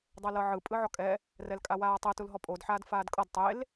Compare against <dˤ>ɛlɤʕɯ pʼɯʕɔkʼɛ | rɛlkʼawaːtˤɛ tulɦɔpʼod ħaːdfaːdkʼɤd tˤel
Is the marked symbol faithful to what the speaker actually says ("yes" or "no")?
yes